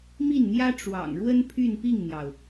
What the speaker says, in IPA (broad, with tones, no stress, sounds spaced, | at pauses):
m i˥˩ n n̪ j ä˥ ʈ͡ʂ w ɑ̰˨˩ ŋ ɻ w ə˥ n pʰ y˥˧ n p i˥˩ ŋ n̪ j ɑ˩ ʊ̯